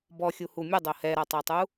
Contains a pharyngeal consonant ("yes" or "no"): no